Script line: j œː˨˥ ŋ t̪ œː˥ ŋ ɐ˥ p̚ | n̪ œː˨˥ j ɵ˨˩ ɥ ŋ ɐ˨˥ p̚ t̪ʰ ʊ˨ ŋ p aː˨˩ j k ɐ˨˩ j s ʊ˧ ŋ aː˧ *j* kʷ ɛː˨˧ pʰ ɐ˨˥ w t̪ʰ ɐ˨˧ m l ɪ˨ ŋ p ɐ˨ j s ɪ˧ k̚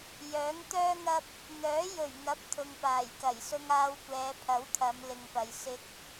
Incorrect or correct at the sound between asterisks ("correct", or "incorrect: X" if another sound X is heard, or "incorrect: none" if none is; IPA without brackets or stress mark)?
incorrect: w